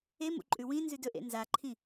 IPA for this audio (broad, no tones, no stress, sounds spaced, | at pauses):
e m ṵ ǃʼ ʉ w ĩ n z ʉ d ɵ ʔ ḛ n z a ǃʰ ĩ